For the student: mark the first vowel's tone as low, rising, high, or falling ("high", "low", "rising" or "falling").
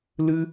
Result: high